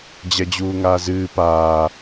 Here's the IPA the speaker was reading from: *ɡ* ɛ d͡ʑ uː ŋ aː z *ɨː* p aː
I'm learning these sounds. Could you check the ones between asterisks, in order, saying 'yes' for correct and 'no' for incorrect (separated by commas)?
no, yes